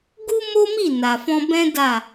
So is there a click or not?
no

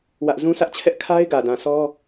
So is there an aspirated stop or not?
yes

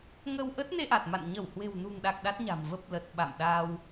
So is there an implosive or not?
yes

